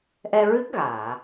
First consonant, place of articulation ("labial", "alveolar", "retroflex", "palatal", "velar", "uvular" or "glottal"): glottal